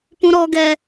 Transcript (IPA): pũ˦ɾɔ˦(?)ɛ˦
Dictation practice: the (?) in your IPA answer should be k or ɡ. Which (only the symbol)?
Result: ɡ